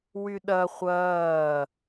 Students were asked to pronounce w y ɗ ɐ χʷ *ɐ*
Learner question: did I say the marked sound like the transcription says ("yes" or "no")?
no